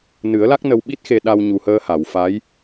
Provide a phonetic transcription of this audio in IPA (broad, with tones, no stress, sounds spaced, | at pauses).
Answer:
n ɨ˨˩˦ ə̯ l a˦˥ k̚ n ə˧ w ɓ i˦˥ t̚ x e˧ ɗ a˧ w ɲ u˨˩ h əː˧ h a˨˩˨ w f a˧˥ j